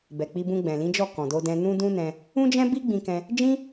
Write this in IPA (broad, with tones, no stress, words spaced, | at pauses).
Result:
bɛ˨k͡pi˧bũ˧ɡ͡bɛ̃˨ lĩ˨˦d͡ʒɔ˦˨ kɔ̃˨do˧dɛ̃˧ nũ˦dũ˦nɛ̃˧ | ũ˦d͡ʒɛ̃˦bi˦ ɡ͡bĩ˧kɛ̃˧ | d͡ʒĩ˦